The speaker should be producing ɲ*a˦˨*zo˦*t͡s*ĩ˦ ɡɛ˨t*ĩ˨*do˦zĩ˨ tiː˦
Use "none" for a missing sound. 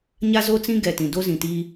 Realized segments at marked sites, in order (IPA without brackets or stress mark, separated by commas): a˦, t͡s, ĩ˨